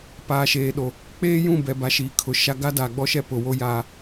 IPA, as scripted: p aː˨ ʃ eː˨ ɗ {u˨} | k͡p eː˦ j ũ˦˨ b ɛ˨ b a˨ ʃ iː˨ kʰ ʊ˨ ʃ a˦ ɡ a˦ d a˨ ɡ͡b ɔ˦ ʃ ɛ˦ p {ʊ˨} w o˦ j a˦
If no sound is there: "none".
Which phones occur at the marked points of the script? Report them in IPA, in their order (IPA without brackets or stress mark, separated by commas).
o˨, ʊ˨